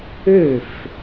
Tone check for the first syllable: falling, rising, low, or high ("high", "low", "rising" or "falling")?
falling